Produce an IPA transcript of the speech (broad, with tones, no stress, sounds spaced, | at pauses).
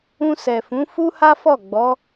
ũ˧ s ɛ˨ f ũ˨˦ f u˦ h a˦ f ɔ˦˨ ɡ͡b ɔ˨˦